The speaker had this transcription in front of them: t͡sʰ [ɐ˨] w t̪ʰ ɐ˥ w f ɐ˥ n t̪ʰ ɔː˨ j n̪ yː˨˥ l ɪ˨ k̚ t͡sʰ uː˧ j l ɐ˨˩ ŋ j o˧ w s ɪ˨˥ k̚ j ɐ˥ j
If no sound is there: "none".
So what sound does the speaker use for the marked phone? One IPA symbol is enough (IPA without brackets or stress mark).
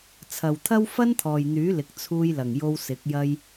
ɐ˨